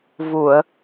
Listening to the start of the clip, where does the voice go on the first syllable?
low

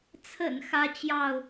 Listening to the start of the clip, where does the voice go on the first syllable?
low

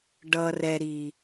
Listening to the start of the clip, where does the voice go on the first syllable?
low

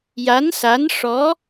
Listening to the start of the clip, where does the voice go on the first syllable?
rising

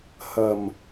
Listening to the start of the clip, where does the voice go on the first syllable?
low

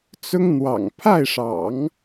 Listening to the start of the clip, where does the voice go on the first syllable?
high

